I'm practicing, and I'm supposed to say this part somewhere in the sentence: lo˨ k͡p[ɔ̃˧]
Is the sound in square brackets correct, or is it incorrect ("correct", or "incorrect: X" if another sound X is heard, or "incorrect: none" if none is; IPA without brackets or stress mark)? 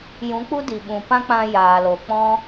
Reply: incorrect: ɔ̃˦